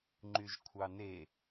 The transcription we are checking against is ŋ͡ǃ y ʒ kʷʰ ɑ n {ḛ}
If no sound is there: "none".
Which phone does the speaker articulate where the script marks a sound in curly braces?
e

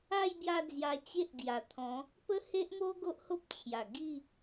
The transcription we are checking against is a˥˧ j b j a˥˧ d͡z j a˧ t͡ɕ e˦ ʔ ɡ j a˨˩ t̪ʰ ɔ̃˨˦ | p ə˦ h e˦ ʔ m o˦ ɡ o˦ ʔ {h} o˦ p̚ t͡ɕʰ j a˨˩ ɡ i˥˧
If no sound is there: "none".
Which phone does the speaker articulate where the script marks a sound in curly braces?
h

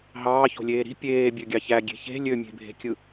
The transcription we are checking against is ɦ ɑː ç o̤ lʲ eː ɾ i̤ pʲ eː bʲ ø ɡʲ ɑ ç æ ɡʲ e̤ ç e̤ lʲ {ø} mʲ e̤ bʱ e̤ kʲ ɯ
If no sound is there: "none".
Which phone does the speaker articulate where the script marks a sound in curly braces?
ø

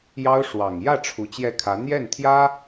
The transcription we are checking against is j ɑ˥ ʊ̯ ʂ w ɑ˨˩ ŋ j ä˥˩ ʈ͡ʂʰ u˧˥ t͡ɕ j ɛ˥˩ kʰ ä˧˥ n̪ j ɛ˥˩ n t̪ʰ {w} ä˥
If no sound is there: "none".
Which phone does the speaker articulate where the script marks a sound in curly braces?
j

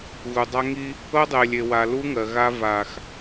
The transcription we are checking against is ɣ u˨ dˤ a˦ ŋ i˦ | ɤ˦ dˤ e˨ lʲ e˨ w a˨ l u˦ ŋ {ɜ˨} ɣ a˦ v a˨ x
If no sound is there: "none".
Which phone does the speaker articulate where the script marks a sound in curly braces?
ɜ˨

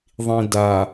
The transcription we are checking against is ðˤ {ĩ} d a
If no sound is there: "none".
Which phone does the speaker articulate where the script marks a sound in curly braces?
ĩ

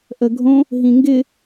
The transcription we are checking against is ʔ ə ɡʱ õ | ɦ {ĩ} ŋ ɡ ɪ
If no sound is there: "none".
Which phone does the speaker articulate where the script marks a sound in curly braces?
ĩ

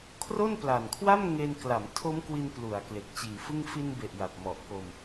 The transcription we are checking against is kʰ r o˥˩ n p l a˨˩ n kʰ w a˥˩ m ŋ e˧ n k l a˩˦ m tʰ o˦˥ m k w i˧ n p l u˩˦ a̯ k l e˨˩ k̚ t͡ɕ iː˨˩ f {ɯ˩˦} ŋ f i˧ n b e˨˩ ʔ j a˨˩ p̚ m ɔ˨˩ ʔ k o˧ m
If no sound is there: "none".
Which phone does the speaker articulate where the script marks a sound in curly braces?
ɯ˥˩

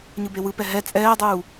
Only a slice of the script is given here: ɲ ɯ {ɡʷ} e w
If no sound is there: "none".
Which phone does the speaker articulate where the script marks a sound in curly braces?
b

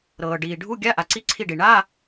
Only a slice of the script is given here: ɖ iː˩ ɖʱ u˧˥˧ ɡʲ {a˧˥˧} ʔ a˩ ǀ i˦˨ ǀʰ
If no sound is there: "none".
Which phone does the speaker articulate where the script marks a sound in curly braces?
a˧˥˧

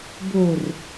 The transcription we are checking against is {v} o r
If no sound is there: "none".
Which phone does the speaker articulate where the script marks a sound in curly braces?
b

